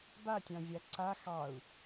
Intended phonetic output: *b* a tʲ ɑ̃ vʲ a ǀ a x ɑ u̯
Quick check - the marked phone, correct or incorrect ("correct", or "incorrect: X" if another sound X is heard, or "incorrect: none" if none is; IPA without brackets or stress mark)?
correct